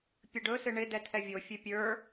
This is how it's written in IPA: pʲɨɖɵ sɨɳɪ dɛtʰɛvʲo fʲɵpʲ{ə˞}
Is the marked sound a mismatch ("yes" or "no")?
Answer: no